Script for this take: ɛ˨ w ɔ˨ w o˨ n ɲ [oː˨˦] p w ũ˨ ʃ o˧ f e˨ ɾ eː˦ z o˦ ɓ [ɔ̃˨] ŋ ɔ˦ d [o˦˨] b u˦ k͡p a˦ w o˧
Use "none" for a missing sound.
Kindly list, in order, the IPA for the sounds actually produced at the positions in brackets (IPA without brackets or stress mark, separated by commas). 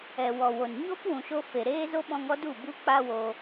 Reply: oː˦, ɔ̃˧, u˦˨